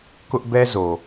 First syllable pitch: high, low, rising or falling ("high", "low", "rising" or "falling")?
high